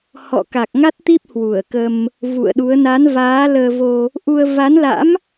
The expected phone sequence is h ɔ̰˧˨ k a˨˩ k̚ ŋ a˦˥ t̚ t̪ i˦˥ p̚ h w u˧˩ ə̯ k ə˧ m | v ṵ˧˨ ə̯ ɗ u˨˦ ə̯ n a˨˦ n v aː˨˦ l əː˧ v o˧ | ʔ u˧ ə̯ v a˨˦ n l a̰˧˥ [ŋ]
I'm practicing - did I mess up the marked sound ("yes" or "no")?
yes